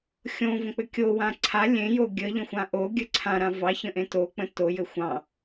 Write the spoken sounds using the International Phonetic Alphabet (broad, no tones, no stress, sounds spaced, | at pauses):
xʲ õ v ə̃ k͡p ɘ kʲ o w ã ǀʰ a lʲ ẽ j o ɡʲ ə ʎ ə̃ xʷ ã ʔ o ɡʲ ə ǀʰ ã ɾ ã v ɑ ç ə̃ ʔ ẽ t o k͡p ə̃ t o j ɘ xʷ ɑ̃